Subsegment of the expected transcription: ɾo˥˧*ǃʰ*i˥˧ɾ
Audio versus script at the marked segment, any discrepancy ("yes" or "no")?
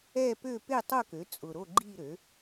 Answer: yes